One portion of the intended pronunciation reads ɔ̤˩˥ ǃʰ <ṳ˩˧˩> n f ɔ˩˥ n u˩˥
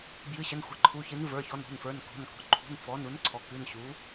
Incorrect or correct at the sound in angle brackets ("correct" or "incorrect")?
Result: correct